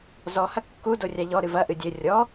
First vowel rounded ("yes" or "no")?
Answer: yes